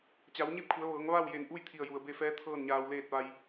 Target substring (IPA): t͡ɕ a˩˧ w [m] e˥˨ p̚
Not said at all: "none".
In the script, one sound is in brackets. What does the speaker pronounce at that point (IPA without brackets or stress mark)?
ɲ